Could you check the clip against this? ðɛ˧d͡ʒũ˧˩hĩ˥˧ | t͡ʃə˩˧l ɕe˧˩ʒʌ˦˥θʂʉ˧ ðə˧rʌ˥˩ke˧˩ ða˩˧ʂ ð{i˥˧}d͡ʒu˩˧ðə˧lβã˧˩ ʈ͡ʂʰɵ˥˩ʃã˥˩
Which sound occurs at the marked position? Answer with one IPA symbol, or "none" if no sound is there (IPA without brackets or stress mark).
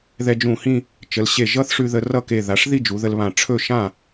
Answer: i˥˧